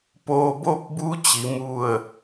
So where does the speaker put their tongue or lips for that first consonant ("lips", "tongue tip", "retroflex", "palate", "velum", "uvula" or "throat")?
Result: lips